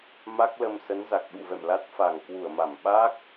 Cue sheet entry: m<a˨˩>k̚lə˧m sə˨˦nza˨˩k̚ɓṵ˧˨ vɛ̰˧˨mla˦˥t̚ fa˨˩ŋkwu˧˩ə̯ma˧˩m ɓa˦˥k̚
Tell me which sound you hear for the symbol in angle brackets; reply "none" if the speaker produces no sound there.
a˦˥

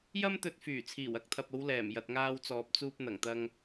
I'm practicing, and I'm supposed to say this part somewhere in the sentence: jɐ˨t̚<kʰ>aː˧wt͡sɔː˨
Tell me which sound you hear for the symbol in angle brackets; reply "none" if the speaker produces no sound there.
ŋ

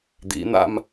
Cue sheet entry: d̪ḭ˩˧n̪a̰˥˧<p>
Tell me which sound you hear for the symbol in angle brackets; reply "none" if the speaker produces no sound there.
m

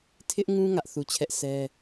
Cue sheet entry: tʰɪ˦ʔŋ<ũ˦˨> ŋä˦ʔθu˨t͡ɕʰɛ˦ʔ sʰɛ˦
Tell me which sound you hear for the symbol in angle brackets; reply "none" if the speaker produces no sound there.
ũ˦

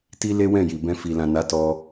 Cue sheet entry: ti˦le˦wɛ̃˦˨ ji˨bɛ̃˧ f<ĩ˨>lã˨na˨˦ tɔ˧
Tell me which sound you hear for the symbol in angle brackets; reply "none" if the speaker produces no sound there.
i˨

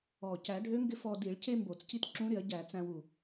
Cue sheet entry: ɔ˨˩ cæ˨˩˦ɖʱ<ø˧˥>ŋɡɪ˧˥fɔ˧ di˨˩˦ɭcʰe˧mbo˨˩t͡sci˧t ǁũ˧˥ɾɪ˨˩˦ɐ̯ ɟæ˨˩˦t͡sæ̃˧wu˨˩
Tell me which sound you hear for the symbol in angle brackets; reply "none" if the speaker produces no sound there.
ø˧˥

